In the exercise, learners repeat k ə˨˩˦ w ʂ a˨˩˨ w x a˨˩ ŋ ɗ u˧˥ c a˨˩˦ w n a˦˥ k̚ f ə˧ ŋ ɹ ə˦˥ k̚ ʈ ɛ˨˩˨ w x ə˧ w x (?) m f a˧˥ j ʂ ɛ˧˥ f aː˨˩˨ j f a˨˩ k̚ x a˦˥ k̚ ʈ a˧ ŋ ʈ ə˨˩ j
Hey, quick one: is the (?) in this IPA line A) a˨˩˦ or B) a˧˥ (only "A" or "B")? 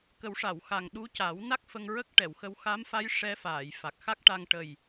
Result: B